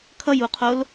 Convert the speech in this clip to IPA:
kʰ ʌ j u qʰ o l

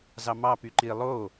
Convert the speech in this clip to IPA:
z ɑ m ɑ p y ǃ i lˠ o

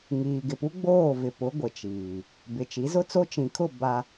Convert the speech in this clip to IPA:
ŋ iː˨ ɡ ɪ˨ p u˦ ɡ͡b oː˦˨ v ɪ˨ p ʊ˨˦ ɡʷ ɪ˨ t͡ʃ iː˨ | b ɪ˨ t͡ʃ i˨˦ z ʊ˦ t͡s o˦ t͡ʃ ĩ˨ kʰ ʊ˦˨ b a˦

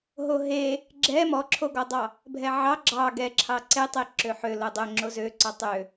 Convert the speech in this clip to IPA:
ɦ o ɦ e | ɡ͡ǁ ɛ m ɔ ǁʰ o ɡ ɔ dˤ ɑ | bʱ ɛ ʕ ɑ ɡ͡ǁ ɑ ɡ ɛ ǁʰ ɑ ǀ e tˤ e ǁ ø ħ ø l o dˤ ø ŋ͡ǁ o z ø ǀ ɔ tˤ ø

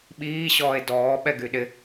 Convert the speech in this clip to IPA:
ɓ iː ɕ ɔː e̯ d ɔː ɓ ɛ ɡ y ɗ ɪ

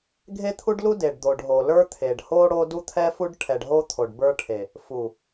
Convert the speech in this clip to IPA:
ɡʱ e˦ t̪ʰ u˦ ɖ l u˦ d e˨ ɖ d̪ o˨ ɖ ɦ o˨ l ə˞˦ t̪ʰ e˨ ɖ h o˦ ɽ o˦ d u˦ t̪ʰ ɛ˦ f u˦ ɖ ʈʰ ɛ˨ ɖ ɦ o˦ t̪ʰ o˨ ɖ b ə˞˦ ʈʰ e˨ | f u˨

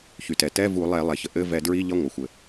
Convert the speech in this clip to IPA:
ç y˩ t ɛ˩ t ɛ˧˥˧ v u˧˩˧ lˠ ɛ˧˩˧ lˠ ɛ˩ ç ə˩ ʔ ɘ˧˥˧ v ɛ˧˩˧ d ɹ i˧˥˧ ʎ ʌ˧˥˧ ŋʷ ʌ˩ xʷ ɘ˩

